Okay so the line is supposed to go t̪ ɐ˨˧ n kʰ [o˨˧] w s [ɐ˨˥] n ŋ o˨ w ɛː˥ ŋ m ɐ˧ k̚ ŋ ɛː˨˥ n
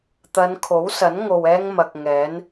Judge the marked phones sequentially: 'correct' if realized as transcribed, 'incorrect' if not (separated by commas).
incorrect, correct